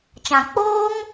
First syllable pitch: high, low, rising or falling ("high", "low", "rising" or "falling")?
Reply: low